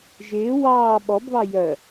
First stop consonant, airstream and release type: implosive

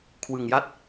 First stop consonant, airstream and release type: aspirated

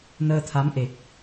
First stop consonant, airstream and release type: aspirated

